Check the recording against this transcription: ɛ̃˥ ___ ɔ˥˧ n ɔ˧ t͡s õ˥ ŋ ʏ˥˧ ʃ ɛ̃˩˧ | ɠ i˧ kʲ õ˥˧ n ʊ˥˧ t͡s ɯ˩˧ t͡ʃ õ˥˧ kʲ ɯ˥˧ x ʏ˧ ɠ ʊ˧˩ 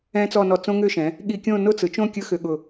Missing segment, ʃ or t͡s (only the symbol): t͡s